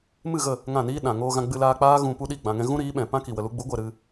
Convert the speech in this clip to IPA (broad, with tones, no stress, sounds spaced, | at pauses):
m ɨ˦˨ ɣ ə˦˨ | ŋ ã˦˨ n iː˦ ɗ ã˨ ŋ oː˧ ɣ ã˧ ɡ͡b ɨ˧ l aː˧ k͡p aː˦ ɣ ũ˧ p u˦ ɗ i˦˨ ɡ͡b ã˨ ŋ ɛ̃˧ ɣ ũ˦ ɾ iː˨˦ ɓ ɛ̃˨ p ã˦ k i˨ w ə˧ l u˦ ɡ͡b u˨˦ ɡʷ ɛ˨ ɾ ɨ˧